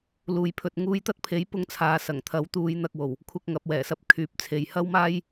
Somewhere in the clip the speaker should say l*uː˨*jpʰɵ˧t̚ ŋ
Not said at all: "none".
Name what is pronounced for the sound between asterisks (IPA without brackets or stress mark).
uː˨